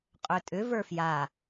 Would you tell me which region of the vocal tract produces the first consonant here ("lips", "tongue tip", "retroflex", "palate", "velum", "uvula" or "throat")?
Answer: uvula